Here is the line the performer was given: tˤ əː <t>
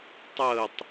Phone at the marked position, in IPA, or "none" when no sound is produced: tˤ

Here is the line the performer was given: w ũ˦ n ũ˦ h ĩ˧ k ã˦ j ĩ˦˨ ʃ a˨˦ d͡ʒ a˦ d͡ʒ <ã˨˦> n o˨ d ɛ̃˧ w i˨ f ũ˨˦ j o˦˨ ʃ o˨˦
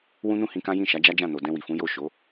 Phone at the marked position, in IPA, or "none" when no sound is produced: ã˦˨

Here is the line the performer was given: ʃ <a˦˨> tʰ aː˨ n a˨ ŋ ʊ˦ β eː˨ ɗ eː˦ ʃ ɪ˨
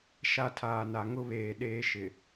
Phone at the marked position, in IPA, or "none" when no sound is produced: a˦˨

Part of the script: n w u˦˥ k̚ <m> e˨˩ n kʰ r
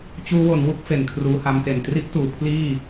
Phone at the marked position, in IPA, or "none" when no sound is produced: f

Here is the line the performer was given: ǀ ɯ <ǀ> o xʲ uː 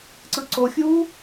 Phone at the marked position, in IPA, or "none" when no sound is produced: ǀ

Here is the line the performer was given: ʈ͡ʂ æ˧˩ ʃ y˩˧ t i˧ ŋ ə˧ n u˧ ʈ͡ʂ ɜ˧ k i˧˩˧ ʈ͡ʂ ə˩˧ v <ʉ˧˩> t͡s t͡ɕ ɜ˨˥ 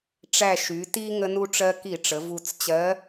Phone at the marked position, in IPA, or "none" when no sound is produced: u˧˩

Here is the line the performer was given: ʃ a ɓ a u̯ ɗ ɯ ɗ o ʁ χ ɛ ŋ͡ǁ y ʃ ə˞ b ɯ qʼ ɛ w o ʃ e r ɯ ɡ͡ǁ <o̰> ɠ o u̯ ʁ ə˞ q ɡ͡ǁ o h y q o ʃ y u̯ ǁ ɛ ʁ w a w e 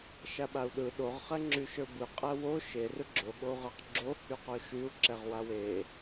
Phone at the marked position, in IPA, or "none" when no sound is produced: o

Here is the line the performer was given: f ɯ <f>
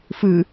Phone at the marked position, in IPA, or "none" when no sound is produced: none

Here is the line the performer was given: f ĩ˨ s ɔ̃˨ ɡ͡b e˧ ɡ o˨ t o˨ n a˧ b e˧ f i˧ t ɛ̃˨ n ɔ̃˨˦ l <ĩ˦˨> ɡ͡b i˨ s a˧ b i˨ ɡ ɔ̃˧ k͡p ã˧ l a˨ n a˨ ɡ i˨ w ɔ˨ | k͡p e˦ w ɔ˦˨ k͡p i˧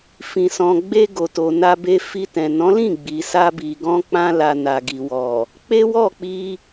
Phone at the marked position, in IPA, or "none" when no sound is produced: ĩ˦˨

